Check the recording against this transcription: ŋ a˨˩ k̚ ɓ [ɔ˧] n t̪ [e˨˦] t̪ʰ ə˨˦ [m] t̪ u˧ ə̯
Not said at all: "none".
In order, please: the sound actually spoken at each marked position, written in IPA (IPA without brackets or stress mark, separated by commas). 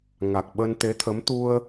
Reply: ə˧, e˨˦, m